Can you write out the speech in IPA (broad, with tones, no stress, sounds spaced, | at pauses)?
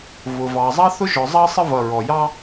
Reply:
v ʊ˩ v ɑ˩ zˤ ɑ˥ θ ʊ˥ ʒ ɔ˩ zˤ ɑ˥ sˤ ə˥ v ʌ˩ ɹ ɔ˩ j ɑ˥